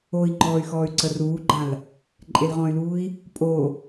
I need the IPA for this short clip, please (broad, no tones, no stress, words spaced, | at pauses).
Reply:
oi̯ŋ͡ǃɔːy̯ xɔːy̯ǀəruːɡ͡ǃãl | ǃʼelʁɔ̃y̯luːi̯ | pʼo